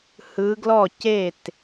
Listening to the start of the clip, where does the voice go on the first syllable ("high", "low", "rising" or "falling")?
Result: rising